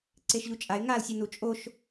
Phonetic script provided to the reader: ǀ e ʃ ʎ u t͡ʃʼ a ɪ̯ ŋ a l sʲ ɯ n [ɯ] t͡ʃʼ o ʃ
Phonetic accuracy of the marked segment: incorrect: u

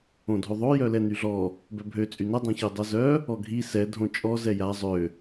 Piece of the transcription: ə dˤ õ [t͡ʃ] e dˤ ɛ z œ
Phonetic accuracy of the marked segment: incorrect: ç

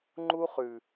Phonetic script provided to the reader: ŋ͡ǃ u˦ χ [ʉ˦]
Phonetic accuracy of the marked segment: incorrect: ʉ˨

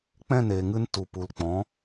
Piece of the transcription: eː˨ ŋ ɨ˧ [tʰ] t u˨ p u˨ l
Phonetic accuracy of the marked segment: incorrect: n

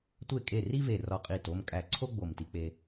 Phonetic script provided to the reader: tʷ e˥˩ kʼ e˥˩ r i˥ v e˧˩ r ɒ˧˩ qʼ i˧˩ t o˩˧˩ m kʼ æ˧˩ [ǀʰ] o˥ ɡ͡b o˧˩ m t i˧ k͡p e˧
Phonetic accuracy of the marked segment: correct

